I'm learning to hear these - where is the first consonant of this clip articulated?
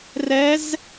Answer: tongue tip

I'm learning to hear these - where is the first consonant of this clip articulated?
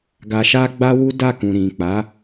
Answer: velum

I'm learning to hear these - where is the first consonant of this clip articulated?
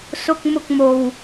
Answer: tongue tip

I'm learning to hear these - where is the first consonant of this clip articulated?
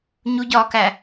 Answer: palate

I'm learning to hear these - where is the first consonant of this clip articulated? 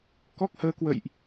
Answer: velum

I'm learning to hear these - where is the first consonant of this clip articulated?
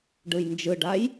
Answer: retroflex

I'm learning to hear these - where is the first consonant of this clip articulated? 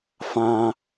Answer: lips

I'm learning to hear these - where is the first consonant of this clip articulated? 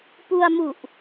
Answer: lips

